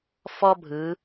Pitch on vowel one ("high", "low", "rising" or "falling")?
high